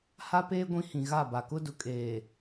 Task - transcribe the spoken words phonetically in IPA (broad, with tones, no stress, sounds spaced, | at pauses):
h a˦ p eː˦ ɡʷ ĩ˦ h ĩ˨ ɣ a˦˨ b a˨ k ʊ˦ d ʊ˨ kʼ eː˨